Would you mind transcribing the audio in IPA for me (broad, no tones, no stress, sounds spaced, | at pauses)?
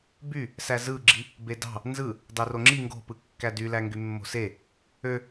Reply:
b y | s æ z ɯ ɡ͡ǁ i | b e d ɑ̤ | n z ɯ | d ɑ r o ŋ͡ǁ i ŋ ɡ o̤ p ɯ kː æ d y l æ ŋ ɡ y mː o̤ s e | ø